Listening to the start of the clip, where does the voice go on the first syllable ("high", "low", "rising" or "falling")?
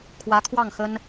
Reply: rising